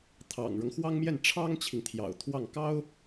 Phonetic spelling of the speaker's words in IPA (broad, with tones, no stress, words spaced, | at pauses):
t̪ʰɑ̰˨˩ŋɻɤ˦ŋxwɑ˥ŋmjɛ˥˩n ʈ͡ʂʰɑ˥ŋt͡ɕʰi˨ŋt̪ʰjɑ̰˨˩ʊ̯t̪ʰwɑ˥˩ŋ kɑ˥ʊ̯